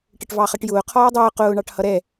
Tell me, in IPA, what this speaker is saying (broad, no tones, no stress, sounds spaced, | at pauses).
ʈ ə ʈ v ɑ χ ʌ ʈ j ʊː qʰ ɔː dˤ ʊː q ʊː ɳ ɑ ʈ h ʌ ɾ ɛ